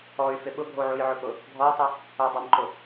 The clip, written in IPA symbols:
ɔ y̯ f ɪ ɓ ʊ ɡʱ o ʕ u j ʕ ʊ p ʊ | ɡʱ ɔ i̯ tˤ i | ʊ dˤ ɪ m ǃ ʊ

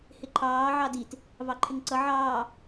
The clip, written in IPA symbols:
h ɪ ǃʰ ɑː ʕ ɑ d i t | v ɑ ǃʰ ɪ ŋ ǀ ʌ ʕ ɑː

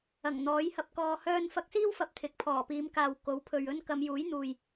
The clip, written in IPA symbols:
ɐ˨˩ ŋ n̪ ɔː˨˥ j h ɐ˧ p̚ k ɔː˧ h œː˥ n f ɐ˥ k̚ s iː˥ w f ɐ˨˥ p̚ t̪ʰ ɪ˨˥ k̚ pʰ ɔː˨˩ p iː˨˧ m k aː˨ w k o˨˥ w pʰ ɵ˨ ɥ ɵ˥ n k ɐ˨˧ m j uː˨˥ j n̪ uː˨ j

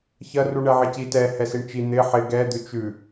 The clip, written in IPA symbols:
ç ɐ r u ɳ ɛ ʕ ɪ c i t ɛ h ɛ s i ɳ t͡ʃ i n̪ ɪ ħ ɪ ɡ ɛ d̪ ʉ t͡ʃ ʉ

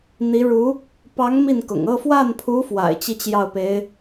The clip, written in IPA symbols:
n̪ i˧˥ ɻ u˧˥ | p ɑ˧˥ ŋ m i˥˩ n k ʊ̰˨˩ ŋ ɤ˥˧ f w a˥˩ n pʰ u˧˥ f w a̰˨˩ ɪ̯ t͡ɕ i˥˧ t͡ɕ j ɑ˥˩ ʊ̯ p e˧˥ ɪ̯

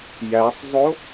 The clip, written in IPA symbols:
j æ sˤ zˤ o

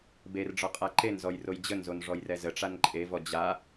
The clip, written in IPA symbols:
b e r ɖ͡ʐ ɒ qʼ a ǃ e n z ɔ j r o j d͡ʑ ə n z o n ʐ ɔ j r ɛ z ə ʈ͡ʂ a n ǃʼ e v ɔ d͡ʑ a

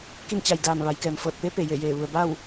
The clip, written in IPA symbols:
k i˥˨ n t͡ɕ a˧˩ j d aː˧˩ m ʋ a˩˧ j k ɛː˩ m f ɤː˧˩ t̚ p e˧˥ p e˩ j e˧˩ j eː˧˩ ʋ u˩ ə̯ b a˥˨ w

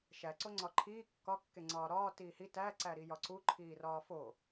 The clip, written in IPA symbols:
ʃ æ ǀ o ŋ͡ǀ ɒ ǃʰ iː kː ɒ kː e ŋ͡ǀ ɒː ɾ ɒː t iː h i t æ ǀ æ ɾ i j ɒ ǀ u ǃʰ iː r ɒː f o

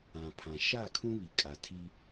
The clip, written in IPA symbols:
ã˨ pʰ ã˨ ʃ a˦˨ kʰ ũ˦ β i˨ kʼ a˨ tʰ i˦

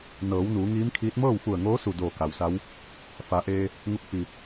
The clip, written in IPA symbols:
n ɤː˩˧ w n uː˩˧ ŋ iː˧˥ m kʰ iː˧˥ t̚ m ɤː˥˨ w f u˧˩ ə̯ ŋ oː˧˥ s u˧˩ d oː˧˩ k a˩ w s a˧˥ w | f a˩˧ ʔ eː˧ | ŋ u˧˥ k̚ f i˧˩

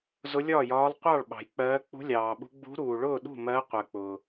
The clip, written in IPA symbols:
z ʊ˧˥ lʲ ɒː˥˩ j ɒː˧˥ lˠ qʷ ɑ˥˩ ɭ ɓ ɑ̤˨ j k͡p ɜː˧˥ k͡p ṳ˧˥ lʲ ɑː˨ ɓ ṳ˧˥ ɡ͡b ṳ˧˥ ɾ uː˨ ɭ ʊː˥˩ ɗ ṳ˥˩ m ɜ˧˥ qʷ ɜ˨ k͡p ʊː˨

